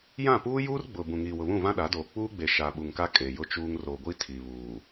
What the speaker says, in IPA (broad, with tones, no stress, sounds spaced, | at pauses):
j ã˦˨ p uː˦ j uː˦ r ɡ͡b ʊ˨ b ũ˨ ŋ iː˨ w ʊ˨ β ũ˦˨ v ã˦ ɗ a˨˦ d oː˨ k͡p uː˦ ɡ͡b e˨ ʃ a˨ ɓ u˨ ŋ k a˦ kʼ e˨ j ʊ˦ t͡ʃ uː˦ ŋ r o˨ ɡʷ i˦ tʰ i˨ β uː˨